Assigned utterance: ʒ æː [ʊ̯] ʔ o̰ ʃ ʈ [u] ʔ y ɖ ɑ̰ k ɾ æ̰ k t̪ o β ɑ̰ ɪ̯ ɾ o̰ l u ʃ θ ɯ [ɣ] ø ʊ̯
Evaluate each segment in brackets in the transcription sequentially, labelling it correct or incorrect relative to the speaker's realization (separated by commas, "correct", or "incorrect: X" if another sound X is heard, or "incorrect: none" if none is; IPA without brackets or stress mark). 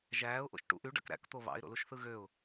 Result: correct, incorrect: ṵ, correct